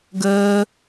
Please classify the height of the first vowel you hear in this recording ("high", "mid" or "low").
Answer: mid